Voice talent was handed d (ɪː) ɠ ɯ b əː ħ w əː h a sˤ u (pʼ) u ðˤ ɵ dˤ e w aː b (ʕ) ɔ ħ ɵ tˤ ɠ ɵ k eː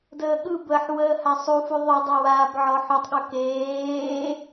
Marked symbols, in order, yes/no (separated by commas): no, no, yes